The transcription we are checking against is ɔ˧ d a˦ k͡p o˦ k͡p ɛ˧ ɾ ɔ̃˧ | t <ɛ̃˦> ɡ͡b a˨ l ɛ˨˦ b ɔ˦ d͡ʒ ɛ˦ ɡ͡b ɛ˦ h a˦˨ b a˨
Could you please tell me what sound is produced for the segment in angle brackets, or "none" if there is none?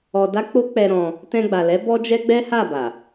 ɛ̃˧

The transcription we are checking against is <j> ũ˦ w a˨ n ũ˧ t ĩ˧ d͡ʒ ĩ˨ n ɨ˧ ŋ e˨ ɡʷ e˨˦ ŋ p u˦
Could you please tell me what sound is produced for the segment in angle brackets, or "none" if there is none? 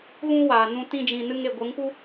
ɣ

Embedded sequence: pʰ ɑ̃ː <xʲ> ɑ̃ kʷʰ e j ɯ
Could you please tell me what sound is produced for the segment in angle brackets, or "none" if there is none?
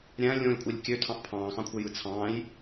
x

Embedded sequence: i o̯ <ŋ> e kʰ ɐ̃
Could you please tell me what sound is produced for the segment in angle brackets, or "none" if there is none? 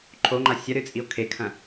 kʰ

